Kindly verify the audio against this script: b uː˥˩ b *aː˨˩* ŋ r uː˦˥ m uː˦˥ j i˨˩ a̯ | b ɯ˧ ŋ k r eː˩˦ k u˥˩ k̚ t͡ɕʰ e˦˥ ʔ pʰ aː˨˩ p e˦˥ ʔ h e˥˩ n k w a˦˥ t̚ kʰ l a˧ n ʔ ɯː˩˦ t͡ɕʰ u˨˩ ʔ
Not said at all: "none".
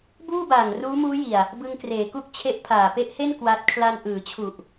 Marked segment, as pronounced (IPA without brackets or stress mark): aː˨˩